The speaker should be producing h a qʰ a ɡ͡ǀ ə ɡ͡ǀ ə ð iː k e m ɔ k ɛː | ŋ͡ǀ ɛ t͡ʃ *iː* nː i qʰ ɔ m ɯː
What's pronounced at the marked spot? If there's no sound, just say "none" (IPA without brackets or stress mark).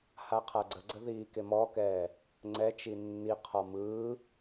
i